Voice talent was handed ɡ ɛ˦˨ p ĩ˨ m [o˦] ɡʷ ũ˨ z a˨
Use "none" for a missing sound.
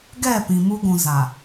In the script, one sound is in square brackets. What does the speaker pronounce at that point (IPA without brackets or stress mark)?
u˦